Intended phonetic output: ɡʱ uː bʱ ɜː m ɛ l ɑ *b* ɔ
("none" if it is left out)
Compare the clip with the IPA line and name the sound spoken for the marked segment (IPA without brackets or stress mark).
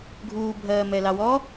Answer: w